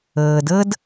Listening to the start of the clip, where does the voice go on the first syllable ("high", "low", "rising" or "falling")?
low